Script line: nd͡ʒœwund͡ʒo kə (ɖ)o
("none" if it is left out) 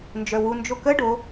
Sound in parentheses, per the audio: ɖ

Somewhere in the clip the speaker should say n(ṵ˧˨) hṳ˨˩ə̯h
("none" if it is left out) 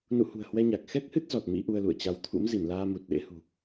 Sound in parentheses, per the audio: ṵ˧˨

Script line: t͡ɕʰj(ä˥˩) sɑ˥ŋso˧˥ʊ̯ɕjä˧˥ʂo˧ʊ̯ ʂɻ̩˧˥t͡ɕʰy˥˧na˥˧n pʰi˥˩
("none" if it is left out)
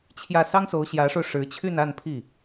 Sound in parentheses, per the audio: ä˥˩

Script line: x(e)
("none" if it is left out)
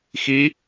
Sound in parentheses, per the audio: i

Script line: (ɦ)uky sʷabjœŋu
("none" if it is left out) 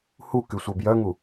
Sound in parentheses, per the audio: h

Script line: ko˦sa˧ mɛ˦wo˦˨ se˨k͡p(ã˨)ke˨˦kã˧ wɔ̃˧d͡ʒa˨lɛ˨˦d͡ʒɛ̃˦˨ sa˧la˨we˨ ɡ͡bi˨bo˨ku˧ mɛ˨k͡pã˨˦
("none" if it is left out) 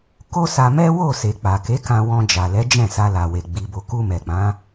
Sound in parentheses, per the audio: a˨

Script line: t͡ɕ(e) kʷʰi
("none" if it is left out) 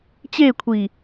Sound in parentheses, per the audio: e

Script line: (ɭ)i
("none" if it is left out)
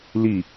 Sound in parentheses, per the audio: l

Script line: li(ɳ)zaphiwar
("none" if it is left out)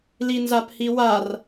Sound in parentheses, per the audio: n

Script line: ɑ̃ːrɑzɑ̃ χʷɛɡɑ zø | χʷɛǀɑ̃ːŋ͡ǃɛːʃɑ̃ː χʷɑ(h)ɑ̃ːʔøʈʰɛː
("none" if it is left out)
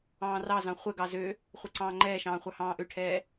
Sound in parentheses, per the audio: h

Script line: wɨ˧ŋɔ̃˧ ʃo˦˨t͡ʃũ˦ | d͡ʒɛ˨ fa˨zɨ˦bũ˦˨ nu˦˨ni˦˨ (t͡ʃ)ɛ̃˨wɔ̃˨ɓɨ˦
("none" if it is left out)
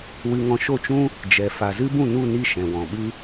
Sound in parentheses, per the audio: ʃ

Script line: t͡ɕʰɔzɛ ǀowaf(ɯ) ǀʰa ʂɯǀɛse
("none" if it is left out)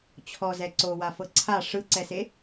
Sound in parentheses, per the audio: ɤ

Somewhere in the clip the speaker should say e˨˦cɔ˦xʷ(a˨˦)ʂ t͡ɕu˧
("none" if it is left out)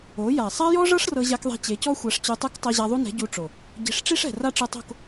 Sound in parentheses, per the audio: a˨˦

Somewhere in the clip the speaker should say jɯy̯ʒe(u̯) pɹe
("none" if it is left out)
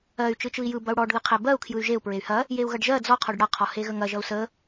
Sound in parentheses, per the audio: u̯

